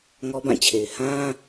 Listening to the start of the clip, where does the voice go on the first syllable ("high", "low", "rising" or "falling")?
high